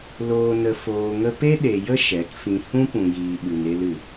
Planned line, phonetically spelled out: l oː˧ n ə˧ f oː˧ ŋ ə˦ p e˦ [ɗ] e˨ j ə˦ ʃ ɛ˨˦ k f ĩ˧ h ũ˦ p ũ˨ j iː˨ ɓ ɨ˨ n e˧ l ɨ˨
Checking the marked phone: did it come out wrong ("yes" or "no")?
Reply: no